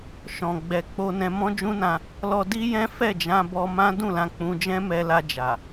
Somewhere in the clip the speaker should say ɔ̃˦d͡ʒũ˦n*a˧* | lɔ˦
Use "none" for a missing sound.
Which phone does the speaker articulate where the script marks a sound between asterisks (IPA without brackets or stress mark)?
ã˧